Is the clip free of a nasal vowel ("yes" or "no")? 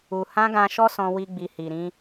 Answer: no